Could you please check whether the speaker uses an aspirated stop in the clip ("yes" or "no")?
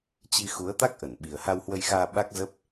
no